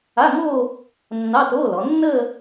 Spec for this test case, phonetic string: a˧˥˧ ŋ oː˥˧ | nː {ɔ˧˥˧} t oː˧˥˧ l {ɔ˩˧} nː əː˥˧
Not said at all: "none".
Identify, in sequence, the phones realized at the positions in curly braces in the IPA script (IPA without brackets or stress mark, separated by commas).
ɑ˧˥˧, ɔ˩˧